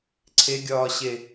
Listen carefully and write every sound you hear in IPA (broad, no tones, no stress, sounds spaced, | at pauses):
ǀʰ e ɡʲ ɒː ɕ e